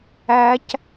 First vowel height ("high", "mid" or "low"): low